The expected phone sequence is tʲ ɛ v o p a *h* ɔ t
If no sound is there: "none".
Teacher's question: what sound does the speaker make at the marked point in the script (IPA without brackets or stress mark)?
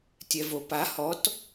h